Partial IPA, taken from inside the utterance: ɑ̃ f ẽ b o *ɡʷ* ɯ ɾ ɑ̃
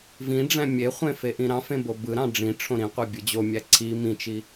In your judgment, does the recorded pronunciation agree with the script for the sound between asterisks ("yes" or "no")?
no